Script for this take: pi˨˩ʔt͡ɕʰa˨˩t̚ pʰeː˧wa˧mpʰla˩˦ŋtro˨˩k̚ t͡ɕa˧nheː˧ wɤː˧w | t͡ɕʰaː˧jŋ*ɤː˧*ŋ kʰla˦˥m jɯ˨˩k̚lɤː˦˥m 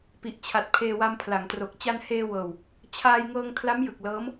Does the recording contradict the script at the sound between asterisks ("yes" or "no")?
no